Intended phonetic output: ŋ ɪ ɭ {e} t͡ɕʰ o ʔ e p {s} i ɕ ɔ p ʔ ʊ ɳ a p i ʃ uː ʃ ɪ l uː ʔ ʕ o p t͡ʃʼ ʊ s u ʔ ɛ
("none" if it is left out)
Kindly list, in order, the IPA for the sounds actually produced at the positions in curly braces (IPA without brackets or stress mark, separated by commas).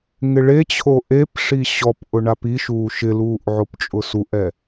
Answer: e, ʂ